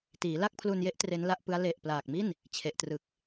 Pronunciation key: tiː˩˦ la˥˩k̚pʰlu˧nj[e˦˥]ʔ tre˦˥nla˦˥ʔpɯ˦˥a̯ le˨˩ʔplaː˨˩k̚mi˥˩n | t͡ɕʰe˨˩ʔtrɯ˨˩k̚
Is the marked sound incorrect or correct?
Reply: correct